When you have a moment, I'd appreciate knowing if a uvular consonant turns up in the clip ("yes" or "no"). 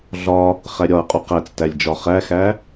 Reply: yes